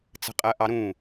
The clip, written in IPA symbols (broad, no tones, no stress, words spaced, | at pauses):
t͡sə̤qʼɜʔɑɾũ